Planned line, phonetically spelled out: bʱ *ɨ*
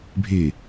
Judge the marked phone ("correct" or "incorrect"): incorrect